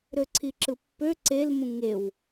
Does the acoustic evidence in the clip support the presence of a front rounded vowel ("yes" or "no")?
yes